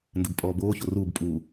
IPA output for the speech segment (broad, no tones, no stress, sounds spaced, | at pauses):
n d ɘ b pʼ ɔː b oː ç o r uː b pʼ uː